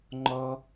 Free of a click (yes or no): no